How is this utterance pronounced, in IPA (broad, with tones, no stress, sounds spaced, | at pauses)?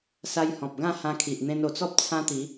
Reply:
s a˧ j h ɔ̃˨ p̚ ɡ ã˥˧ h ã˧ kʰ i˨ ʔ n̪ ẽ˧ n o˨˩ t͡s ɔ˦ p̚ t͡sʰ ã˦ t̪ i˨˦